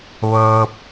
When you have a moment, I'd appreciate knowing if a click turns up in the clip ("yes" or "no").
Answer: no